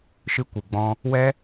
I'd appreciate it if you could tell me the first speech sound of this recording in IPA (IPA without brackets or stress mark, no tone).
ʃ